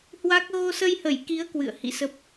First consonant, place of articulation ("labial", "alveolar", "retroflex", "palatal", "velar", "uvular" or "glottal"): glottal